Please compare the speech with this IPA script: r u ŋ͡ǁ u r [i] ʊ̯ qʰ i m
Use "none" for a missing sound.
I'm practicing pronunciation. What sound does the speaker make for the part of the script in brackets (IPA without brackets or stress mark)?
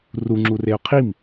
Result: e